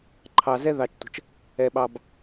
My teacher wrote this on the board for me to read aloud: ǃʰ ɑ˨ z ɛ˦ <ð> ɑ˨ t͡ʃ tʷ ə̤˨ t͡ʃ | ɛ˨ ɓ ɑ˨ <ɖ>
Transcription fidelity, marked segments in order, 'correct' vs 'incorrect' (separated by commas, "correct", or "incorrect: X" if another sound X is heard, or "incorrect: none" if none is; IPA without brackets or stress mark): correct, incorrect: b